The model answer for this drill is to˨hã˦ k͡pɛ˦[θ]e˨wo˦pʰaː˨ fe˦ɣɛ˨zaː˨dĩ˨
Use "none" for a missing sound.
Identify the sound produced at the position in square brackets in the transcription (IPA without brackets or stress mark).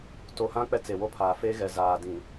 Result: t͡s